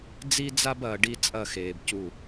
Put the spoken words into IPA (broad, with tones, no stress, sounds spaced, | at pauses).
d͡z i˦ d͡z a˦ b ɐː˨ ɖ i˦ t͡sʼ ɐ˦˨ x eː˨ b c u˦˨